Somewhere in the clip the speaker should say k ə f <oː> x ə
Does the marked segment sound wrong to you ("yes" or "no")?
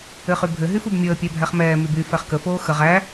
no